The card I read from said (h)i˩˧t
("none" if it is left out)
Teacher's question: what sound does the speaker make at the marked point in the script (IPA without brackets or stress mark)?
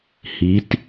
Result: h